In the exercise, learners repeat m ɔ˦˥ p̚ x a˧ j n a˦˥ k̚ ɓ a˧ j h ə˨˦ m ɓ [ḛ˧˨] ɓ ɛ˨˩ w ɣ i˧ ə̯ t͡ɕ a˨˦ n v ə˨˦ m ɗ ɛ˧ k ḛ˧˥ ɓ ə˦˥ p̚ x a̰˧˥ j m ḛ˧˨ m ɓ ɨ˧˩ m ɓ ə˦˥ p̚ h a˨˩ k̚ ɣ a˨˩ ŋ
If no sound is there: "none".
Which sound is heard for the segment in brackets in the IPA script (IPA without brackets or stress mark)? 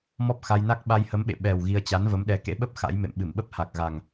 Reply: ḛ˧˨